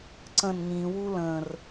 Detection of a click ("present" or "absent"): present